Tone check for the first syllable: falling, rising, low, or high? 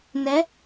rising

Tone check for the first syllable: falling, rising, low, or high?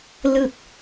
falling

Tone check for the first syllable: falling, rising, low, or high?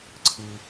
low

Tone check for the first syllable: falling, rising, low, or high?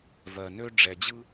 low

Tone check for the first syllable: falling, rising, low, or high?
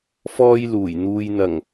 high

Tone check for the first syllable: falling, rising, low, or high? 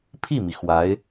falling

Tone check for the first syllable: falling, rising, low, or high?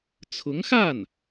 rising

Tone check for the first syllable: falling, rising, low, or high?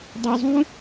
low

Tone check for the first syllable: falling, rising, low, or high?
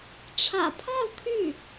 low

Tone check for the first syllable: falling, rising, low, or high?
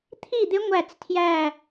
falling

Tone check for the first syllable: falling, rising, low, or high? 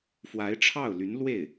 rising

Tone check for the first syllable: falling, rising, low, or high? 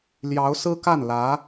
rising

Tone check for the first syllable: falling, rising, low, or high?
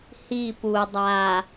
falling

